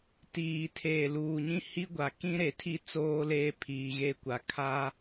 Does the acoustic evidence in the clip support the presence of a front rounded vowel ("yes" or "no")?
no